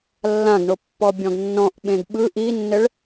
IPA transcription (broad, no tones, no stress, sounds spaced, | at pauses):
lː ã ɡ ɳ o pː ɔ bʲ ɔ̃ ɡ nː ɔ̃ ʔ ɓ ẽ ɡ ɓ ɯ ʔ i nː ɘ ɭ